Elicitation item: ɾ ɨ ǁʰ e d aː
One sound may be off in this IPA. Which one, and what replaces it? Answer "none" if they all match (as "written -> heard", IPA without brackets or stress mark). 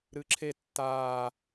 d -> tː